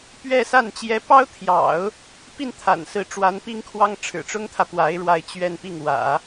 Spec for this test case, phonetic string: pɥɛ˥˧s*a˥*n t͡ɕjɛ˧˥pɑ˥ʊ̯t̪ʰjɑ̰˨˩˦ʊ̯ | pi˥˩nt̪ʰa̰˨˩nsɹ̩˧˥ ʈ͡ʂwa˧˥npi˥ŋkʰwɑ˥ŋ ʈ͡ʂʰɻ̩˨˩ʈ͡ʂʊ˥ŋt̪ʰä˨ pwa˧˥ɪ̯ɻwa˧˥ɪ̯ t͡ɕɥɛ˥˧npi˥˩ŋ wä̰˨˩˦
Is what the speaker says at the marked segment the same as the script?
no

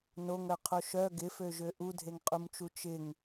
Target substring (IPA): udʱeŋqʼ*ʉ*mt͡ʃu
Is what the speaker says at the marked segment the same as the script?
no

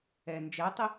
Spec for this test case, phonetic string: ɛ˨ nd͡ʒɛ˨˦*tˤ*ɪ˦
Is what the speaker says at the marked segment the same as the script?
yes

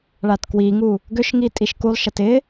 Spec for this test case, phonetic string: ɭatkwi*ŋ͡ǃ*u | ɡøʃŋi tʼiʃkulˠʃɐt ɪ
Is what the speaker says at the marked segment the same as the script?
no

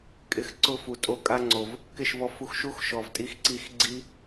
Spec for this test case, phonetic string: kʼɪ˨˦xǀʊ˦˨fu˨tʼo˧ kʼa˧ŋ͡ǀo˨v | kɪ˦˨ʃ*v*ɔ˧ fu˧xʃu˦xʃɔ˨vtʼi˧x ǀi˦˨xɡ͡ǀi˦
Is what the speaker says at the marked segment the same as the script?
yes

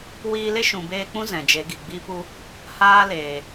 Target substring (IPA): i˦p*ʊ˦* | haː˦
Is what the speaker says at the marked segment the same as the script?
no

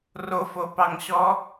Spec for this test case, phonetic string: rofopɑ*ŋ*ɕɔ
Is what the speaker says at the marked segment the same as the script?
yes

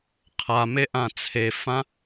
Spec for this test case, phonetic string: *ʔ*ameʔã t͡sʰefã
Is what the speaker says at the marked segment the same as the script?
no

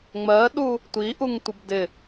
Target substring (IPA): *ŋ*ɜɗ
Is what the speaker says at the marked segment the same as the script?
no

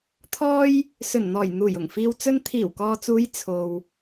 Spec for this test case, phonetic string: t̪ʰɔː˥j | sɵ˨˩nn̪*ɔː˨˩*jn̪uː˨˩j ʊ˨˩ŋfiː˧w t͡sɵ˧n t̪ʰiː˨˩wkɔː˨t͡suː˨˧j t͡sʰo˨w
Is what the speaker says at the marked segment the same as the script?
yes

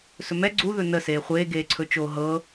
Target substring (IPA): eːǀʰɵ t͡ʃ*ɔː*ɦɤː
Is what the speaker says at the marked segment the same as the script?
no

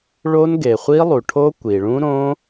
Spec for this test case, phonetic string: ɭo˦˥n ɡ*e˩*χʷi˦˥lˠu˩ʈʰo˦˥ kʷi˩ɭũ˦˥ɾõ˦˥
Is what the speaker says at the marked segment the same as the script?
yes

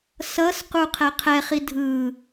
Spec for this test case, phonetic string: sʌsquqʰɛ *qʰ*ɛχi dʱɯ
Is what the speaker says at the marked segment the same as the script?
yes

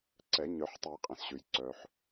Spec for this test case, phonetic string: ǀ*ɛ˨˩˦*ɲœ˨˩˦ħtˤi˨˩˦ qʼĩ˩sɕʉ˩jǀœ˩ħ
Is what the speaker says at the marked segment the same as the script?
yes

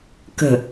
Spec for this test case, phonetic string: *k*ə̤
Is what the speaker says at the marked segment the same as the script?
yes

